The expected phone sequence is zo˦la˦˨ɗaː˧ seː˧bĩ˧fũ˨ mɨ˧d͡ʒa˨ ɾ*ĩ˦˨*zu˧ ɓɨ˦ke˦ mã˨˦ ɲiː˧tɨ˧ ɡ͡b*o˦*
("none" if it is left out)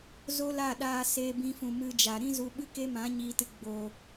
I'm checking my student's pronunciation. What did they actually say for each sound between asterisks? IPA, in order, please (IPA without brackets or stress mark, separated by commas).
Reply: ĩ˦, o˨